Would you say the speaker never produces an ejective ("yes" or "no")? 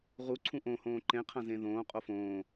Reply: no